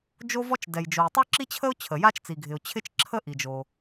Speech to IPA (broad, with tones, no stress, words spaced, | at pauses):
d͡ʒo˥vɔ˥t͡ʃ dɛ˩j d͡ʒo˩ɪ̯tˤo˥ǁi˥t͡ɕʰə˥ʊ̯ t͡ɕʰə˩ja˥t͡ʃ t͡si˩ɡʱɪ˩ʊ̯ t͡ɕʰɪ˥t͡ʃǁʰə˥ʔi˩d͡ʒo˩